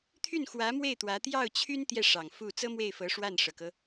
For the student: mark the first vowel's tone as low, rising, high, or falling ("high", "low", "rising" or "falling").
falling